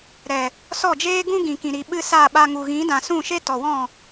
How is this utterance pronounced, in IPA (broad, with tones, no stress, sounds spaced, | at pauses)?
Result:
ɾ ɛ˨ | s ɔ˦˨ d͡ʒ eː˦ ɡ ũ˦ ɡ ĩ˨ k ĩ˨ ɾ i˨ ɓ ɨ˧ s a˦˨ ɓ a˧ ŋ u˨ ɣ ĩ˨˦ d ã˨ s ũ˦˨ ʃ e˦ t ɔ˨ w ɔ̃˦˨